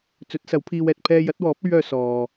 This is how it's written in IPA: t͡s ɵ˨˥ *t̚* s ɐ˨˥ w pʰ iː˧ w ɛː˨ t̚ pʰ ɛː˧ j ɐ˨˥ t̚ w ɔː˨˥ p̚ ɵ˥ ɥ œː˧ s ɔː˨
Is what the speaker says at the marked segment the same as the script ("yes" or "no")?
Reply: yes